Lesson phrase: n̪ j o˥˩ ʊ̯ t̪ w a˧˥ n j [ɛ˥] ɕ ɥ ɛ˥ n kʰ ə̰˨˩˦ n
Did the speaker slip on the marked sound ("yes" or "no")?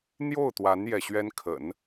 yes